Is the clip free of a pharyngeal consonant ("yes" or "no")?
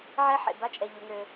no